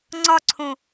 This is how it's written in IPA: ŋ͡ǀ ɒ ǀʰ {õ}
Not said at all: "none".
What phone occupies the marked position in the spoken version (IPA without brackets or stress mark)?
õ